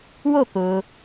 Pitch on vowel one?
falling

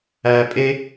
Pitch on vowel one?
high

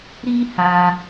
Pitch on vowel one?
high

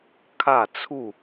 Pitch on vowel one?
falling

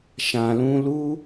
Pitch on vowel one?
low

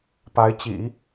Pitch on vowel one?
rising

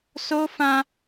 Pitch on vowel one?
high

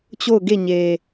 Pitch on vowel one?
falling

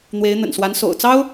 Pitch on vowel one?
rising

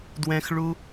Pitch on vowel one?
high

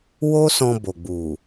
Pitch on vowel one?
high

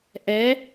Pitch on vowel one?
rising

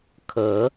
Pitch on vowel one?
rising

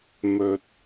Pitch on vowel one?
low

